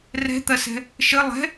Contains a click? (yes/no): no